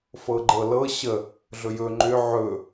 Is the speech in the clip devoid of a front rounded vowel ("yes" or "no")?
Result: no